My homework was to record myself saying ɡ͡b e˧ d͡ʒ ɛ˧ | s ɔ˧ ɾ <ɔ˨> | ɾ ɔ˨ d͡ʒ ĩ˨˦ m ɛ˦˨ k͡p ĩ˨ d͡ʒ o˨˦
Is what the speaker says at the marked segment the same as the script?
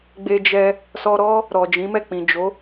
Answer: no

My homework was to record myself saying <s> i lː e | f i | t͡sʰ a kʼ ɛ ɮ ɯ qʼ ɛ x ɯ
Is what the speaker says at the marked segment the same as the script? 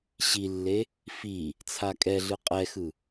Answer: no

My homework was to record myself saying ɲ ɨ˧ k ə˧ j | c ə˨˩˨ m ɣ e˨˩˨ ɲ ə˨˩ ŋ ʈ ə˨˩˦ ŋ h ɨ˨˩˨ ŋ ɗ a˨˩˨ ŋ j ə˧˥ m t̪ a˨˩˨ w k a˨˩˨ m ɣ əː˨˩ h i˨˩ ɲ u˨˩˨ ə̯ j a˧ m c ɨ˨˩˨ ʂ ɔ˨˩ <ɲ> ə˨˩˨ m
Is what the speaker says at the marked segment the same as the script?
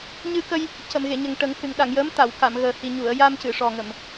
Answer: no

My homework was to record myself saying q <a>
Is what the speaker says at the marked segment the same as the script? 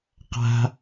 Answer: no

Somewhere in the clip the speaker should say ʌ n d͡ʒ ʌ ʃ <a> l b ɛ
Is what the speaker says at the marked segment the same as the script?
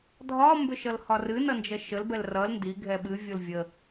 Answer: no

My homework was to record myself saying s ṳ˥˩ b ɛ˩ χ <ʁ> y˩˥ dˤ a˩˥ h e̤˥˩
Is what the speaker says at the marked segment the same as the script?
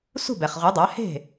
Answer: yes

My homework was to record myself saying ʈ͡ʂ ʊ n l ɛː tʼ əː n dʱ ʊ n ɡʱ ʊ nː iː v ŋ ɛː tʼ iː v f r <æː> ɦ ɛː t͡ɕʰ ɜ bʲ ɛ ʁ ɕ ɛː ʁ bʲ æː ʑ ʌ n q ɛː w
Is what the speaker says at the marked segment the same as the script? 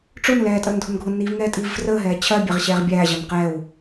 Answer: no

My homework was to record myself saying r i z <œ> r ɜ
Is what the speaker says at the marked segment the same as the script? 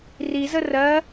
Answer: no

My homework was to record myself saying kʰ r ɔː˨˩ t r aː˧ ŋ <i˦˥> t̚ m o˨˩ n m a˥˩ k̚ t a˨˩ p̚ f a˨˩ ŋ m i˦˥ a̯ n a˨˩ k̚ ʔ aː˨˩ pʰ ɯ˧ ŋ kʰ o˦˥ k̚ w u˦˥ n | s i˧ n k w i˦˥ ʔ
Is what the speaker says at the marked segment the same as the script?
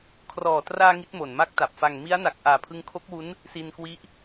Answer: yes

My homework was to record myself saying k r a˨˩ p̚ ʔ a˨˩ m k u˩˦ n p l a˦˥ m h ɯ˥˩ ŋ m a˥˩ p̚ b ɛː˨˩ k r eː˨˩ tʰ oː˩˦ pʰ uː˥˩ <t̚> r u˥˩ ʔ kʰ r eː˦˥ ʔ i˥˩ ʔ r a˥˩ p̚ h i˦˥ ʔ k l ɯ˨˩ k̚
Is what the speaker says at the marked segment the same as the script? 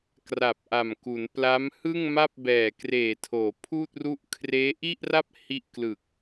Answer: yes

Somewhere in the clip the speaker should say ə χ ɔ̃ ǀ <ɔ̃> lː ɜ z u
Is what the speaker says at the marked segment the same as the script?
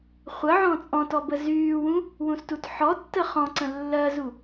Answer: no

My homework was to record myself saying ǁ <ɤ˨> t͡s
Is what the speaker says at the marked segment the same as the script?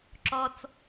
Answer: no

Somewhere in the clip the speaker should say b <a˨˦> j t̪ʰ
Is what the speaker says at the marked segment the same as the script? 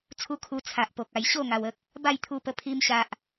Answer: no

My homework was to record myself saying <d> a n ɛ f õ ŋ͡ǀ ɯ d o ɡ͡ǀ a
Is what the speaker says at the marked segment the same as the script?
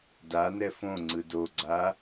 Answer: yes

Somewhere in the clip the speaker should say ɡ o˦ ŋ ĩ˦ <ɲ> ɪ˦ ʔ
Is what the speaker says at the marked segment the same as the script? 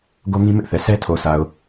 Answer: no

